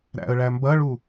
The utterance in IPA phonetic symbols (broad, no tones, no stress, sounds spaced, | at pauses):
ɾ æ̰ ə̯ ɭ æ m b ɐ ɭ u